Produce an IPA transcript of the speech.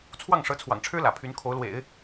t͡sʰwɑ˥˩ŋʂɤ˧˥t͡sʰwɑ̰˨˩ŋʈ͡ʂʰɻ̩˥ lä̰˨˩pʰy˧˥nkʰo˧˥ʊ̯lwḛ˨˩˦ɪ̯

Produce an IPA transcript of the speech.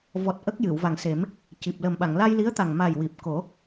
vɔ˨˩t̚ ʔə˦˥k̚jɨ˨˩˨w va˨˩ŋse˨˩˦m | ci˨˩p̚ lə˨˩mɓa˨˩˨ŋ la˧jli˧˥ə̯t̪a˨˩ŋma˨˩j wi˨˩p̚ko˨˩˦

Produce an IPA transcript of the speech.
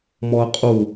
mɔə̯qʼu

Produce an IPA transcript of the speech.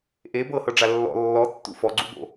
ʔe bɤhɤɖ͡ʐa lːɔ̰ lːɔtːṵ fɔɡ͡ǀṵbo̰

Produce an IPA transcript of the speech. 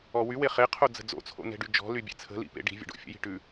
ɔwywe χeqʰo d͡zə̤d͡zo̰t͡sʰo̰ nɛ̤ɖyd͡ʒɔ̤ly bʲḛt͡sʰə̤lḭ pḛɖi̤vʲə̰ ɖo̰fʲə̰ji̤ ʈʉ

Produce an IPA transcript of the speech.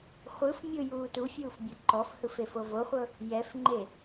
χʷɯf mʲɯ juːtufʲuːf bʲɤǃɔfhɯf efovoχʷɤ | jɛfŋ͡ǃe

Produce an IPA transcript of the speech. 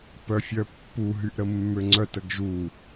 pœfʲœpːu ɦyʔɾəmːøŋ͡ǀœt əɡʒu

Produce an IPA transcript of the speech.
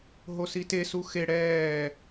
ɦosite suxe ɽɛː

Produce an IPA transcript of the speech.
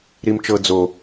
ɾimt͡ʃɤ d͡zo

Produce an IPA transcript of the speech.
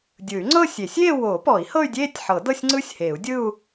dʲɯ˨˩˦y̯ŋ͡ǀɤ˥˧sʲe˨˩˦sʲ eː˥˧wo˨˩˦pɔ˨˩˦i̯ hɤ˥˧y̯dʲeː˥˧tʲħɤ˨˩˦ dɤ˥˧sʲŋ͡ǀɯ˥˧sʲheː˨˩˦u̯dʲɯ˥˧u̯

